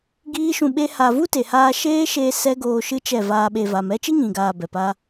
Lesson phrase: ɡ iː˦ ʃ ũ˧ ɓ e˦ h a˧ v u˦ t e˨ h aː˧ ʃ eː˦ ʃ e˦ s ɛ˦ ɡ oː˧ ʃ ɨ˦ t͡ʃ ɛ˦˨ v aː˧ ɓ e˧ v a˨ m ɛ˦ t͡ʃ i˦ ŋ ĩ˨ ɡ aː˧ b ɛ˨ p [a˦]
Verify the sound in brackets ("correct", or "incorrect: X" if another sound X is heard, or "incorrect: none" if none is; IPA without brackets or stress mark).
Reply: correct